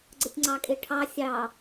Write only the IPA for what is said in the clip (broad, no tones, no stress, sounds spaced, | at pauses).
ɡ͡ǀ ə tʲ ŋ͡ǀ ɑ kʼ e ʈʰ ɑ sʲ ɑ